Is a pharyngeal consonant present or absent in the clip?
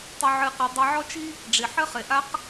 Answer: present